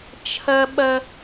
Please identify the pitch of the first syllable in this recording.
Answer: high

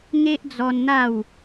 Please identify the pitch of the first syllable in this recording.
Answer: high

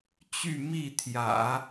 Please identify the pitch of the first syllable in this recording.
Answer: falling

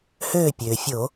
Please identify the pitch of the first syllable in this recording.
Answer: falling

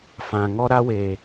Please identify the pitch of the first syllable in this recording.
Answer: low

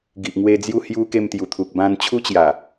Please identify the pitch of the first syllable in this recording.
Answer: low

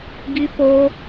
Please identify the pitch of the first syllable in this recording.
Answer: high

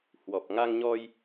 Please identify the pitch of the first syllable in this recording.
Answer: low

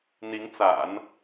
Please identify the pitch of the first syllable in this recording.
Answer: rising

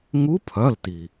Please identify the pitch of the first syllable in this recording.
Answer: rising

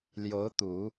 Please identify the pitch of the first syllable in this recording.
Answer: rising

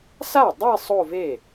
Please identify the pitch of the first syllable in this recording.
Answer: falling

